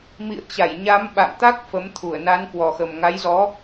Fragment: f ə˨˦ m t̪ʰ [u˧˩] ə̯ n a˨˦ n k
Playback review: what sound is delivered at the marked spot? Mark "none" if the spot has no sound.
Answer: u˧˩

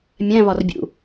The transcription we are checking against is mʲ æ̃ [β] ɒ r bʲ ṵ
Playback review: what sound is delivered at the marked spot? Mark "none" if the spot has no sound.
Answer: β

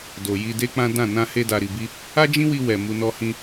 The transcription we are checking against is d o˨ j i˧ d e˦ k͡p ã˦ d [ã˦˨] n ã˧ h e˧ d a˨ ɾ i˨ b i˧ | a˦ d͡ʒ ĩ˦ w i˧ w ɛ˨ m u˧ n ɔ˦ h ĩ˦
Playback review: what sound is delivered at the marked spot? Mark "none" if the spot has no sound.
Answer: ã˦˨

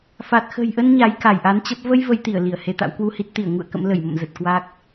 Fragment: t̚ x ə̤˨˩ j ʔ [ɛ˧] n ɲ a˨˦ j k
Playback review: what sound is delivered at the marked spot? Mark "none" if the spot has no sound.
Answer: ə˧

